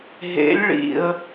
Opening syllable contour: rising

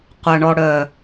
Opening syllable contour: low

